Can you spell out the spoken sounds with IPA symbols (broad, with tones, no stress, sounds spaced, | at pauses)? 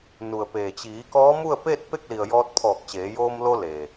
n u˩ ə̯ p eː˩ t͡ɕ iː˩˧ k ɔː˧˥ m u˥˨ ə̯ p eː˥˨ t̚ p e˥˨ k̚ l i˩ ə̯ j ɔː˧ t̚ pʰ ɔː˧˩ k̚ t͡ɕ eː˩˧ j oː˧ m l o˧ l e˩